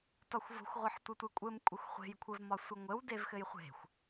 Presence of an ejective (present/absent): present